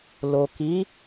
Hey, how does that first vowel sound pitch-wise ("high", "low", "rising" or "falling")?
low